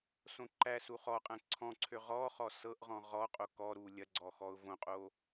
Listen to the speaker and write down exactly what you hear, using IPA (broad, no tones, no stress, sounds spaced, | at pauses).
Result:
s õ ǃ æ s u χ ɔ qʼ æ̃ ǀʰ ɔ̃ ǀʰ ø ʁ ɔ χ ɔ s ɤ ʔ ʁ ɔ̃ ʁ ɔ qʼ o k ɔ ɾ u lʲ ɐ ɡ͡ǀ ɔ x ɔ ʊ̯ v õ qʼ o